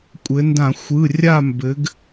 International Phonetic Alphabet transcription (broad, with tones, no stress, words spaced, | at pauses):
kʷʼɘ˩˧ndã˧˩˧ xʷɯ˩˧˩ rʲa˦˨mbɘ˩˧ɡ